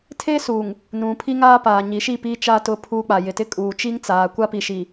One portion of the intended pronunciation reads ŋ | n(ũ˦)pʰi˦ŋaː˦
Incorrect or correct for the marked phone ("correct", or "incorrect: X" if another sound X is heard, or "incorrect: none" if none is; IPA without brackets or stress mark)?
incorrect: ũ˨